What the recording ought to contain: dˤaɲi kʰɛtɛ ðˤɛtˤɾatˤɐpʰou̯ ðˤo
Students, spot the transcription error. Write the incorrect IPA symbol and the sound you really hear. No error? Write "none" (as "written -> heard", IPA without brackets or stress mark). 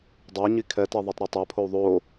ɐ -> a